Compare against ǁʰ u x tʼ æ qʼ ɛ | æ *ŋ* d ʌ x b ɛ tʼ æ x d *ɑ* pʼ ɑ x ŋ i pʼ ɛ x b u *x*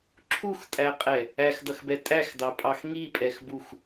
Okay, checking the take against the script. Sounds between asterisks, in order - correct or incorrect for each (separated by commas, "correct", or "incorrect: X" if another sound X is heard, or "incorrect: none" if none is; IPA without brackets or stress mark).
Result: incorrect: x, correct, correct